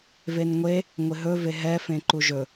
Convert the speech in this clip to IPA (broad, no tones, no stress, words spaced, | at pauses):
venŋʷe | ŋʷɪɦɵve ɦɛfẽ ǃuʒɵ